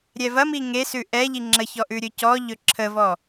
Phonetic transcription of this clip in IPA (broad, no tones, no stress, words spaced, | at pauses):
ɾʲɛvɐmi ŋesʉ ʔɛʎi ŋ͡ǁəçɔ ʔʉɾʲɵcɔʎɵ ǁʰəvɔ